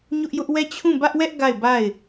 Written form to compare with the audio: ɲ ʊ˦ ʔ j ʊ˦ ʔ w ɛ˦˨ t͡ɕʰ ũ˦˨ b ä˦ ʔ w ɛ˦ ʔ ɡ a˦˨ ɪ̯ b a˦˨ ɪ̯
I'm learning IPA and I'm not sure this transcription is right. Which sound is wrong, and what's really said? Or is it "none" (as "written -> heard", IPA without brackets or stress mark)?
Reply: none